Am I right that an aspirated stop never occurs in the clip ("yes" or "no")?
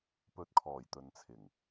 no